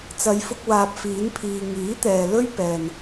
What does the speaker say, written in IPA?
t͡s ɐ˨˧ j f ʊ˧ k̚ w aː˨ p̚ f iː˨˥ n pʰ iː˨ ŋ iː˨˥ t̪ ɛː˨ l ɵ˥ ɥ p ɛː˨ n

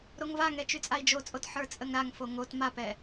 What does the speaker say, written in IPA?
ɾ o ŋ v a ŋ ɛ t͡ʃ y t͡sʼ a i̯ d͡ʒ o t͡sʼ o t ħ ə˞ t͡sʼ ə ŋ ɾ a ŋ f o ŋ o t m a p ɛ

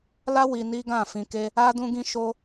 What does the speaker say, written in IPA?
l a˦ w i˧ n i˦ ɡ ã˦˨ f ĩ˧ k e˦ | a˦ d ũ˦ ɡ ĩ˦ ʃ o˦

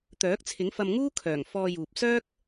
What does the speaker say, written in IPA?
t̪ œː˨˥ k̚ t͡sʰ ɪ˨˥ ŋ f ɐ˧ m ŋ uː˥ kʰ œː˨˩ ŋ f ɔː˧ j uː˨ p̚ s œː˥ k̚

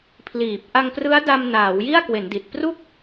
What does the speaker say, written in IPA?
pʰ l iː˨˩ p̚ ʔ a˧ ŋ p r ɯ˦˥ a̯ d a˧ m n aː˩˦ w j i˥˩ a̯ k w e˩˦ n d i˨˩ t̚ p r u˥˩ k̚

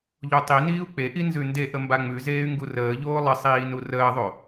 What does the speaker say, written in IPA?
ʎ o tˤ i n iː u̯ k͡p e ʔ i n z ʉ n d e ʔ ə m b a ŋ͡m ʉ z eː y̯ ŋ ɡ u r əː ʎ oː lˠ ə sˤ iː n u r əː ðˤ o

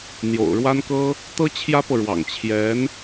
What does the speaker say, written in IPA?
n̪ j o̰˨˩ ʊ̯ ɻ w a˥ n k ɤ˥ | t̪ ɤ˥ t͡ɕʰ j ä˥ p ɤ˨ ɻ w ɑ̰˨˩ ŋ t͡ɕʰ j ɛ˧˥ n

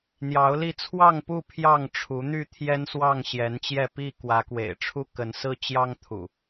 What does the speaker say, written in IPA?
n̪ j ɑ˨˦ ʊ̯ l i˧ t͡sʰ w ɑ˥˨ ŋ p u˥˨ pʰ j ɑ˥˨ ŋ ʈ͡ʂʰ u˨˦ n̪ y˥˨ t̪ʰ j ɛ˦ n s w ɑ˥˨ ŋ ɕ j ɛ˨˦ n t͡ɕ j ɛ˥˨ p i˥˨ k w ä˨˦ k w ḛ˨˩ ɪ̯ ʈ͡ʂʰ u˦ k ə˨˦ n s ɹ̩˦ t͡ɕ j ɑ˦ ŋ t̪ʰ ṵ˨˩

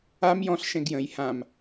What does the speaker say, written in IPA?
a m j ɔ̃ ɬ ʃ ɛ̃ ɡ j ə̃ j h ã m

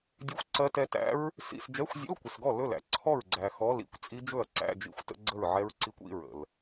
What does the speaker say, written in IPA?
dʲ ɜ˦˥ xʷ ǀ ɜ˦˥ t ɛ˦˥ t æ̰˦˥ ɹ | s ḭ˧˥˧ s d͡ʒ ɛ˧˥˧ xʷ zʲ ə̰˧˥˧ l kʷ ə˨ s ɡ ɔ˥˩ l ɵ˥˩ l æ̰˨ ǀʰ ɔ˥˩ ɹ ɡ͡ǀ æ˨ x ɔ˧˥˧ l ḭ˥˩ kʷ t͡sʼ i˦˥ d͡ʒ ɵ˥˩ ɐ̯ ǀ æ̰˧˥˧ d͡ʒ ḭ˥˩ xʷ t ə̰˦˥ ɡ͡ǀ ə˥˩ ɹ ʕ ɛ˦˥ ɹ ǀ i˦˥ kʷ ḭ˧˥˧ ɹ ə̰˨ l

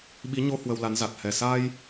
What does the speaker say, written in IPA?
ɓ i˨˦ ɲ o˧ h w ə˧ w l a˨˦ n z a˨˩ t̚ h ɛ˨˩ s a˧ j

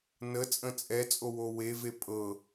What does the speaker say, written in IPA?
n ə t͡sʼ ə̃ t͡sʼ ɛ t͡sʼ o w o w e v e pʼ ɤ

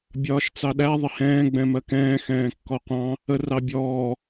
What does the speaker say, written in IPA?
bʲ ɒː ʃ t͡s ɑ ɗ æ ðˤ ɪ h ɛ̃ː ɡ͡b ɛ̃ m ɜ k ɛ̃ː x ɛ̃ː kː ɔ qʷ ɑ̃ | ə r ɑ bʲ ɔː

